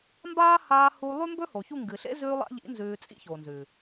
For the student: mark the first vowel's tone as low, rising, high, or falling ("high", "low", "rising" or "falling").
high